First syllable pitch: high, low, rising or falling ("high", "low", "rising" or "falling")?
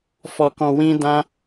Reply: low